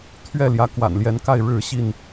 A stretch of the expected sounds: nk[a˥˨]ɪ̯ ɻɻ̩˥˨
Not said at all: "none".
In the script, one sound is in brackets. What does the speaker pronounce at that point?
a˥˨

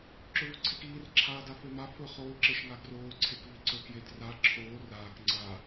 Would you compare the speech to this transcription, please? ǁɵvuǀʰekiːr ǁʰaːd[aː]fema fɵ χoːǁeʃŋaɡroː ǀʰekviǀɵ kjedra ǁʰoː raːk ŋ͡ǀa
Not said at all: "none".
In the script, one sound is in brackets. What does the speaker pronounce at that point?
a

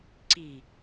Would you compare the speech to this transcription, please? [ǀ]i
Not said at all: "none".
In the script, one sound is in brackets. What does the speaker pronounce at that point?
ǀ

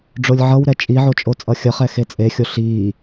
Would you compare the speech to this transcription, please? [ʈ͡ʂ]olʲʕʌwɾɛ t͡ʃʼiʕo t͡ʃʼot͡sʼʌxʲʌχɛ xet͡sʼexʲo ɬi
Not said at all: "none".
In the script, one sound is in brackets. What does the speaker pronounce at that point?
ɖ͡ʐ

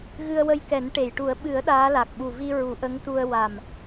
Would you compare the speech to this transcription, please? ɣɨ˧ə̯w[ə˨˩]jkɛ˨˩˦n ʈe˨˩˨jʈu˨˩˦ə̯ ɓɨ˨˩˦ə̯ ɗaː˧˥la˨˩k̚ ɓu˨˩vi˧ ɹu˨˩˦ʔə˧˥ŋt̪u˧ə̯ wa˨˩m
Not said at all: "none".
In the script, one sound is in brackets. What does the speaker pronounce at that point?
ə˧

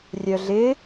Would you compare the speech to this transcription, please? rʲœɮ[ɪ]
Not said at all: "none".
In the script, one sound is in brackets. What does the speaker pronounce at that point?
ɪ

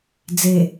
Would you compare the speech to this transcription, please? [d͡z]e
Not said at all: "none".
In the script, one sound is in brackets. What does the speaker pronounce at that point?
d͡z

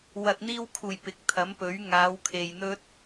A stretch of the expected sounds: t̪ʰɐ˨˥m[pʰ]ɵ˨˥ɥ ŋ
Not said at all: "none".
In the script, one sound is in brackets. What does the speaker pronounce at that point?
p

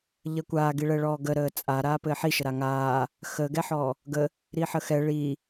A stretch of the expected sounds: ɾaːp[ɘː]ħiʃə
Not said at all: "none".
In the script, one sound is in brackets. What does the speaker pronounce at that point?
ɘː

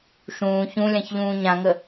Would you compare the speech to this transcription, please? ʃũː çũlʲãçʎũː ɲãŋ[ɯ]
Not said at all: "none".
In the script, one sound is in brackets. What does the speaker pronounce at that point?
ə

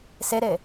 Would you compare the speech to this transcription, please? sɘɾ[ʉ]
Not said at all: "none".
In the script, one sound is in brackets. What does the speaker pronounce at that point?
ɘ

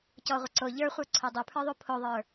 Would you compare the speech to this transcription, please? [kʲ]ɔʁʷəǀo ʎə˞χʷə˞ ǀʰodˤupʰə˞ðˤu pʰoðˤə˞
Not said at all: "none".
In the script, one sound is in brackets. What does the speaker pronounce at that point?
c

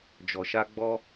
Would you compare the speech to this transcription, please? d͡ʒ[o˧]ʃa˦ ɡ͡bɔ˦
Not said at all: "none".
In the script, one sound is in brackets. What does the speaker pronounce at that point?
ɔ˧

